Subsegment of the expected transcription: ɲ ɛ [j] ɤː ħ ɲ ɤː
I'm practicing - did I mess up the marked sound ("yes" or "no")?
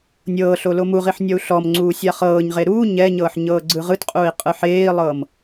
yes